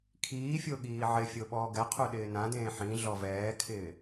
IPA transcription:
kʰiːfʲo ɠiːʕɪfʲo ɓɔːɡɛqʰu ɗɪːnãdẽː ħĩ ɮɔvɛːkʰɪː

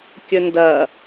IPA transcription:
kʲɵndɐ

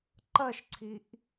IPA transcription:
ǃɐʃǀʰiʔ

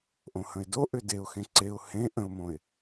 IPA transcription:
ʔõhə̃ɪ̯do ʔʏdeʊ̯xẽ ǀeʊ̯ hẽ ʔə̃ʊ̯mõɪ̯

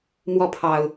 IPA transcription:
mwɔ˥˨pʰɑ˨˩ʊ̯

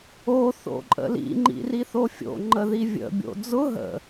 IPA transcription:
o θo̰ǃʼə̰lḭ ŋ͡ǃḭriθofʲo̰ ŋ͡ǃəðivʲə̰ bʲo̰d͡zʊ ɦə̰

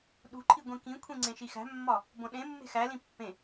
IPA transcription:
ɗṳǃʰi ɡʷĩkĩkʷʰĩ ŋ͡ǀẽʃixæ̤mːɒ | bõɗẽmːe̤ xælĩ pːẽ

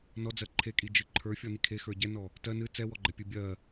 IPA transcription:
nɔd͡zɜ ǃʰekʼid͡ʒɨ ǃʰə˞fʲɔni kʰexə˞ ɟɛnɔ | tɜ nɨ t͡sɛwɔɡ͡ǃɛpʲɨ bʲɜ

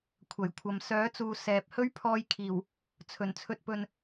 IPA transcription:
kʷʰɐ˨˩jkʷʰɐ˨m sœː˨˥t͡suː˨ sɛː˨p̚ hɵ˥ɥpʰɔː˧jkʰiː˨˩w | t͡sʰɵ˨˩n t͡sʰɵ˨t̚pɵ˨n

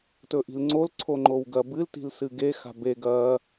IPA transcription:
tɵʔi̤lŋ͡ǀol ǀʰoŋ͡ǃowɡɐ bɨl ti̤lsɨɡe xa̤be ɡɐ

